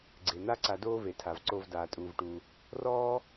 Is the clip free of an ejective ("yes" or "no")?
no